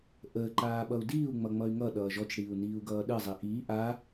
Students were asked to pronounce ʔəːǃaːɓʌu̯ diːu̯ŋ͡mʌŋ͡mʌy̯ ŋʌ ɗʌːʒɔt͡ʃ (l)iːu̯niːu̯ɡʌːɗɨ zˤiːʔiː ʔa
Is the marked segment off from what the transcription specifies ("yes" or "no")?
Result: yes